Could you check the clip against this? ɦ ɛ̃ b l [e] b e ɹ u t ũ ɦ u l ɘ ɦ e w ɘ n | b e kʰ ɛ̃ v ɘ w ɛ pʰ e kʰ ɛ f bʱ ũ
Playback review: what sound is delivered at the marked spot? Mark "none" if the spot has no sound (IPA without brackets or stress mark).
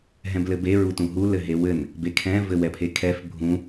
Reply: ɘ